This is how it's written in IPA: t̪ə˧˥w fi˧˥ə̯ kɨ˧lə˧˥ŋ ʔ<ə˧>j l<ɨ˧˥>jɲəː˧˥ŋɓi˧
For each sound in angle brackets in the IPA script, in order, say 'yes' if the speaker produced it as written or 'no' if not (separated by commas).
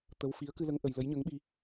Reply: yes, no